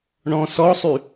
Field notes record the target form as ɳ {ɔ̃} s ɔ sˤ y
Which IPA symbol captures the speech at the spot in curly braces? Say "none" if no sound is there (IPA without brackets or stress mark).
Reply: ɔ̃